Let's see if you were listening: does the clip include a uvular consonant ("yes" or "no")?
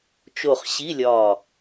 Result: yes